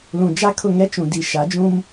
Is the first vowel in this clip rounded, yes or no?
yes